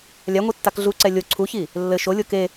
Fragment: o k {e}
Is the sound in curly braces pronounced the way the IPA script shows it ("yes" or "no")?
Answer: yes